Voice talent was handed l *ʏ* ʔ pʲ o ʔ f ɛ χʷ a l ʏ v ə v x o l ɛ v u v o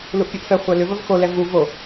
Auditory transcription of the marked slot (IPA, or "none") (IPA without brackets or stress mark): u